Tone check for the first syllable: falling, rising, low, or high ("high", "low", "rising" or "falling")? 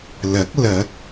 rising